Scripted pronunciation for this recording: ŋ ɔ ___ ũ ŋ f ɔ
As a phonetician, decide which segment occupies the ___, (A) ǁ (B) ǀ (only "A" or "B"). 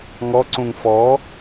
B